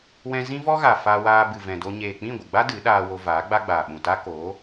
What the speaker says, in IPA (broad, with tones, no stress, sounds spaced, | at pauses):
w ɛ̃˧ z ĩ˦ v ɔ˦ ɣ a˨ f a˧ w aː˧ b ɨ˨ v ɛ̃˨ d o˧ ɲ eː˨ k͡p ĩ˦˨ ɡʷ ə˨ ɡ͡b a˦ d ɨ˨˦ ɗ aː˧ w o˧ v aː˨˦ ɡ͡b a˦ ɡ͡b aː˨ ɓ ũ˨ t a˦ k oː˨˦